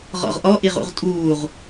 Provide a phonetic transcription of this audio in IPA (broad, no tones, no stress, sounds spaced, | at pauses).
ʁ ɔ̰ ʁ ʔ ɔ ʔ i ʁ ṵ ʁ tʼ uː ʁ